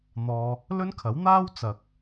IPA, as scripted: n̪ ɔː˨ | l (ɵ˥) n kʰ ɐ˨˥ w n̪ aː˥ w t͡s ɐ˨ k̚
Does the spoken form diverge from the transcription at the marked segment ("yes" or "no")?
no